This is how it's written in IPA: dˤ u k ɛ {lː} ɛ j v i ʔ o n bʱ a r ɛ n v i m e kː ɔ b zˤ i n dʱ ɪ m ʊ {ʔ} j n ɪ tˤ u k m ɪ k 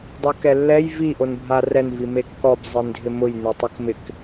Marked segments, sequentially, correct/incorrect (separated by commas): correct, incorrect